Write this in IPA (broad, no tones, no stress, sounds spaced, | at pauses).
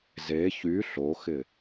z e ç y ɬ o x ɪ